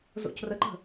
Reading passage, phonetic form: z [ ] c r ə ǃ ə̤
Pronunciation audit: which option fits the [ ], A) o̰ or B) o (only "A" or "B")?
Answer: A